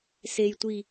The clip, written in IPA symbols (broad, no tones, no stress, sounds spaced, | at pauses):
s e j tʷ i